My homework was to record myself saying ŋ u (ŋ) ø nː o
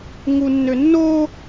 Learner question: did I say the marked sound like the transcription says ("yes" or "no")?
no